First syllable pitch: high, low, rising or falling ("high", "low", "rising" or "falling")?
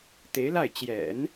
rising